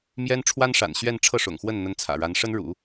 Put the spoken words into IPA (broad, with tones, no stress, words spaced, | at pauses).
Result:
mjɛ˥n ʈ͡ʂʰwa˥nʂa̰˨˩n ɕɥɛ˥˧n ʈ͡ʂʰɤ˥˩ʂʊ̰˨˩ŋxwə˥˩n n̪ə˥nt͡sʰä̰˨˩ ɻa˧˥nʂə˥nɻṵ˨˩˦